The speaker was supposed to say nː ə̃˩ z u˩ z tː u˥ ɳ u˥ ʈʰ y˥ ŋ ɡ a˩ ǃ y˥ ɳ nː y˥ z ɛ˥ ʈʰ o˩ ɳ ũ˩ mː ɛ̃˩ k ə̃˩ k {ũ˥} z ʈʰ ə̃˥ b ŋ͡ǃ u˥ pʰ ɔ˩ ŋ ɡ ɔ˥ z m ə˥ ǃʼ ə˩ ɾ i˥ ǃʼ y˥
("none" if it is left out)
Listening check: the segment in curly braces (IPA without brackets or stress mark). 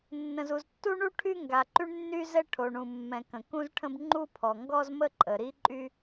ũ˥